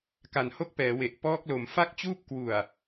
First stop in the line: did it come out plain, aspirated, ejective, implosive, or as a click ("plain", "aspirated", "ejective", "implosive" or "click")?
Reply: plain